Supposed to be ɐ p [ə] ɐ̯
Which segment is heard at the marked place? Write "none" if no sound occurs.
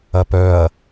œ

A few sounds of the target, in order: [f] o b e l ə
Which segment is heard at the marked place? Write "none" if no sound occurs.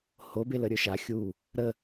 h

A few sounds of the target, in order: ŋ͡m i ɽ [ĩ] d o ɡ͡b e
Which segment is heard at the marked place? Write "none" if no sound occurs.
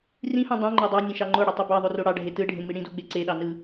ĩ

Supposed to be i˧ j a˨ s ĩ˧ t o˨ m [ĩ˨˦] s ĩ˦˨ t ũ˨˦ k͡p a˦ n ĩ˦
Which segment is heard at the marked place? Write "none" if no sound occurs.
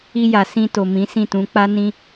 ĩ˨˦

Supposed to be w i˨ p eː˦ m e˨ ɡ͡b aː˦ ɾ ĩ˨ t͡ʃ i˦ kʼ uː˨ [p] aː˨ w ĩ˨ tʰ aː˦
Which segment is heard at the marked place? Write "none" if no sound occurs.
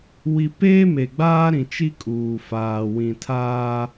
f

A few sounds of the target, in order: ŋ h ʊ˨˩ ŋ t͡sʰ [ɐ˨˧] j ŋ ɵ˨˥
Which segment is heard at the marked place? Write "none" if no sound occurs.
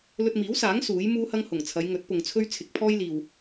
ɐ˨˧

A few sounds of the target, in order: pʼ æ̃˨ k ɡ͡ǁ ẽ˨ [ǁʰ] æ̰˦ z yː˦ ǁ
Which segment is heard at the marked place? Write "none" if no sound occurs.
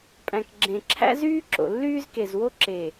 ǁʰ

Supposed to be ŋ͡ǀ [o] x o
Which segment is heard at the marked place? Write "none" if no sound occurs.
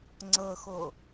ɤ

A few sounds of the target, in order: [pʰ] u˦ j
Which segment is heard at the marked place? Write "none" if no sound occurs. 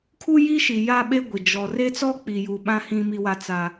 kʰ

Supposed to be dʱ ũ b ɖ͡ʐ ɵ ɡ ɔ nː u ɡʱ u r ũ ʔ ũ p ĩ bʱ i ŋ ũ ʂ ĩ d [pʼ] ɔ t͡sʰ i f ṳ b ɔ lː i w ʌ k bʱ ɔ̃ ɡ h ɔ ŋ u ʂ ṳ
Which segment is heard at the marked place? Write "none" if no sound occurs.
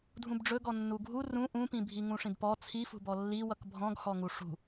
p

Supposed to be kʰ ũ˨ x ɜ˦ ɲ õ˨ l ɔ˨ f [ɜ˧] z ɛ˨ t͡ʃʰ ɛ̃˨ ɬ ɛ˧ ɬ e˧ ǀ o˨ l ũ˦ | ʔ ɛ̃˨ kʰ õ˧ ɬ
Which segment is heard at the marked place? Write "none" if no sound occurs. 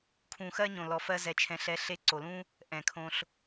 ɜ˧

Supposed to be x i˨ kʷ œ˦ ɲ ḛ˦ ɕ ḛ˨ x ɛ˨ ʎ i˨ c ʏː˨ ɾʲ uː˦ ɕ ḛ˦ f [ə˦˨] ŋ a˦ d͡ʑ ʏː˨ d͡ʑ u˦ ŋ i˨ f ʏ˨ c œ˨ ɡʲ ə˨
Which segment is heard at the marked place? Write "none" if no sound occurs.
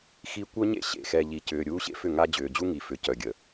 ʏ˦˨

